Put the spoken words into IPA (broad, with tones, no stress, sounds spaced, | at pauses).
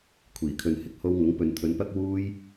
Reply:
kʷʰ iː˨˩ kʰ ɵ˨ n h ɪ˥ k̚ h o˧ w ŋ ʊ˨˥ ŋ p ɵ˨˧ n t̪ʰ ɵ˨˧ n p ɐ˥ k̚ w uː˧ j